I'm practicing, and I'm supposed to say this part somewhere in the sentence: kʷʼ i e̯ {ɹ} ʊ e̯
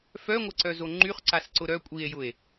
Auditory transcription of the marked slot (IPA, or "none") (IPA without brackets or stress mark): j